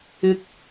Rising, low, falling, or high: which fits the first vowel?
low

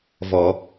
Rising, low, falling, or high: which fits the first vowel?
low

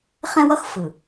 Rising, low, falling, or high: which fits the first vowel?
high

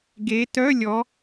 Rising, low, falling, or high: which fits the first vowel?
rising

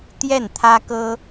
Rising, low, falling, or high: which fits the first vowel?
falling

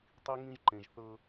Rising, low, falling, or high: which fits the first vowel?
high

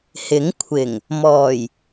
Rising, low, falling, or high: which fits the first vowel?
rising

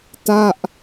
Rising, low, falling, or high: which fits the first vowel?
falling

